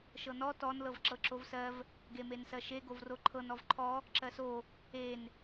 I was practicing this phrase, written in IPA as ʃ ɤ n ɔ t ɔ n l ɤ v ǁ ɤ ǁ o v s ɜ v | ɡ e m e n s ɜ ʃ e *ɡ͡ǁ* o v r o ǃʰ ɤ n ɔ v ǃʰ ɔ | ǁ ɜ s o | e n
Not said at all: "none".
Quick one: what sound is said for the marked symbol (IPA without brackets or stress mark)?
ɡ